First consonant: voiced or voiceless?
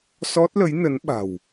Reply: voiceless